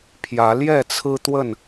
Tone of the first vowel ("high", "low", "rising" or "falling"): rising